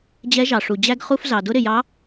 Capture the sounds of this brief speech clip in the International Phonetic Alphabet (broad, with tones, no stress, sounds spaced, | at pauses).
d͡ʑ ɛ˧˥ ʒ ɑ˩ ʂ u˩ d͡ʑ æ˥ ɡ χ u˧ f z ɑ˩ d ʊ˧˥ ɾ ɪ˩ j ɑ˧˥